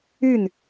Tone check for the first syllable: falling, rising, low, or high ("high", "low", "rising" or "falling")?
falling